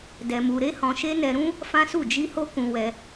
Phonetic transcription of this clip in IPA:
d ɛ˧ m u˧ ɾ e˦ h ɔ̃˧ ʃ e˦ n ɛ˧ ɾ ũ˦ | f ã˦ s u˦˨ d͡ʒ i˧ h o˦ k ũ˧ w ɛ˧

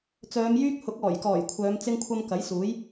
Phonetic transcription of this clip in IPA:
t͡s œː˨˧ m j yː˥ k̚ h ʊ˨˥ k̚ ɔː˨˩ j k ɔː˨˩ j kʷʰ œː˨˧ m t͡s ɪ˥ ŋ kʷʰ ɐ˥ m k ɐ˨˥ j s uː˨˥ j

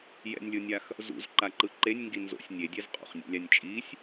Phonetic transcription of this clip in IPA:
j ɛ̰ nʲ lʲ o nʲ a x | z ṵ z ǃ a ǃ ɯ ǃ e nʲ ŋ ɡ i n z o̰ sʲ nʲ e dʲ ɛ z qʼ ṵ χ nʲ ḛ lʲ a nʲ t͡ʃʼ i sʲ

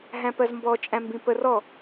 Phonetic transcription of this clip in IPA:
ɦ æ̃ p ɜ z m b ɔ t͡ʃʼ æ̃ m b ĩ p ə r ɔ

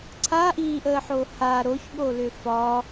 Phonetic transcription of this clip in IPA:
ǀʰ a ʔ iː ʔ əː ħ o h a ɾ o ç ɠ o l ʏ f ɒ

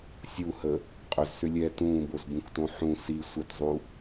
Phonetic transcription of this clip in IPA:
sʲ u h ə | qʼ ʏ z s ʏ lʲ ɛː t ũː b o z b ũ k t õ ħ ũ s i sʷ ə t zˤ u

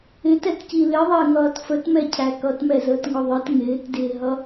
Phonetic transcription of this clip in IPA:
ɪ t ɛ t c i l ɪ ðˤ ɪː ŋ ʌː t f ə t m ɛ cʰ æ k ʌ t m ɛ z əː t ŋ ʊ ðˤ ɪ t ŋ ɪː t d ɪː ɦ ʌ

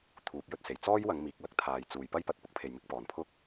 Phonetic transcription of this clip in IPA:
t̪ʰ uː˨˥ p̚ j ɵ˧ t̚ s e˨˩ j t͡s ɔː˥ j w ɐ˨˧ ŋ m iː˨ k̚ l ɐ˧ k̚ t̪ʰ aː˨ j t͡s uː˨ j p ɐ˥ j p ɐ˧ t̚ p ʊ˥ k̚ pʰ e˨ j m ɪ˧ k̚ p ɔː˨ n pʰ ʊ˥ k̚

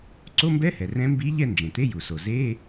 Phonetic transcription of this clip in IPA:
ǀ o˧˥˧ m b ɛ˧˥˧ h ɛ˩ r ɛ̃˧˥ m b i˧˥ ʎ ɛ˥˩ n d͡ʒ ẽ˩ t̪ e˧˥˧ j u˩ s o˩ z e˧˥˧

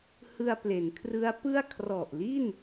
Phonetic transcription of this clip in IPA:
h ɯ˧ a̯ p l e˩˦ n kʰ r ɯ˦˥ a̯ p ɯ˥˩ a̯ kʰ r ɔ˨˩ ʔ l i˥˩ n

